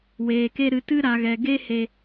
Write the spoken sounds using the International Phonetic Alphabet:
weː˨ke˧ ɾɨ˨tɨ˧ ɾa˨ɣɛ˨ ɡe˦he˧

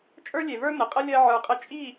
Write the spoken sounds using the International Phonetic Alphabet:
t͡ʃʼə˞˦lʲe˨və˞˦ nə˨qʼə˦ lʲɜ˦ ʕə˞˧qʼə˦ t͡ʃʼi˦˨

